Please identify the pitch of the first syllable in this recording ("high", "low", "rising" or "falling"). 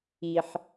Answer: low